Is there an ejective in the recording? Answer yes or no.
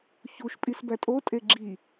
yes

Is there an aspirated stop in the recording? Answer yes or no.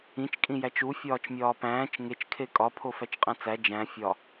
yes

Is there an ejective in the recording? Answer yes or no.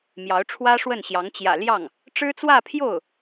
no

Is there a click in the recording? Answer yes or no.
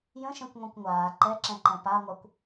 yes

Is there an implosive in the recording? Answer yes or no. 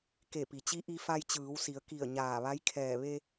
no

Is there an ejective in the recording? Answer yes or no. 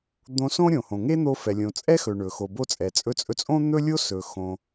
yes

